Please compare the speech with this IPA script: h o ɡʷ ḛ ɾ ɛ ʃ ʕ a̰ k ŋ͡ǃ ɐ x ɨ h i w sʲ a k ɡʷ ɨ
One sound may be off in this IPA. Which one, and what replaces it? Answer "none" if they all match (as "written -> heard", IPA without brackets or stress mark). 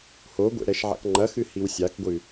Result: none